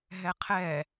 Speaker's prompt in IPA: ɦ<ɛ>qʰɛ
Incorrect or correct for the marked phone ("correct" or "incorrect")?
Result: correct